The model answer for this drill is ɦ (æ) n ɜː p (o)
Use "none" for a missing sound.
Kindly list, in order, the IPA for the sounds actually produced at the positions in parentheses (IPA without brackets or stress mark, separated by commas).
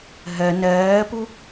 ɜ, u